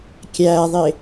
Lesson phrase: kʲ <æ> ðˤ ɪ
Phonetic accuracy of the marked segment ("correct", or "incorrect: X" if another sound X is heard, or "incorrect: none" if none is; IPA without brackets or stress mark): correct